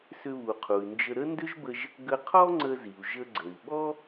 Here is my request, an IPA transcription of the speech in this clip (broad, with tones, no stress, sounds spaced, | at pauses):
s ʏ˧ β u˩ qʰ u˩ y̯ n d͡ʒ ə˧ ɾ ə˥ n d ʏ˥ ʒ b ə˧ ʒ | ɡ ə˧ qʰ ɔ˥ ŋ͡ǀ ə˧ z i˩ u̯ ʒ ə˧ ɡ͡ǀ ə˩ i̯ ɓ ɔ˥